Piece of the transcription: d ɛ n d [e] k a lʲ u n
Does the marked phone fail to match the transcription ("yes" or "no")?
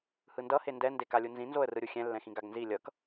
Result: no